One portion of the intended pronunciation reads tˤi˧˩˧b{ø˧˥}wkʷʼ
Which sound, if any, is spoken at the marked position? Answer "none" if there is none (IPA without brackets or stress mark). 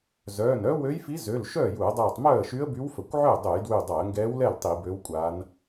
ø˧˥